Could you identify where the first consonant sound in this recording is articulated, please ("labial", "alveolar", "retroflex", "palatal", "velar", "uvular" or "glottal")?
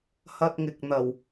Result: glottal